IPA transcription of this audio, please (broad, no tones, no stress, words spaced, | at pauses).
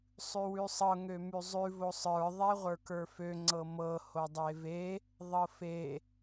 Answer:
sˤʉwʉsˤɤ ŋømʉzˤʉ vosˤə˞ ðˤɛʁʷə˞kə˞fø ŋ͡ǀɤmɤ hodˤeve | ðˤɤfe